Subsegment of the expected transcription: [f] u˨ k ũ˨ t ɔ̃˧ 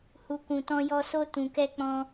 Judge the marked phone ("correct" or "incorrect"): incorrect